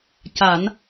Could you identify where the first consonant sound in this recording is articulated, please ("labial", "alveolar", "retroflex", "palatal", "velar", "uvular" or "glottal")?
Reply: palatal